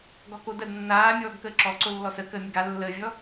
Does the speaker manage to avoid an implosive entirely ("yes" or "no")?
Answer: yes